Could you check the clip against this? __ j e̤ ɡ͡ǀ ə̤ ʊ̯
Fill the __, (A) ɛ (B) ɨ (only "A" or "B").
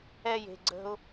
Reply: A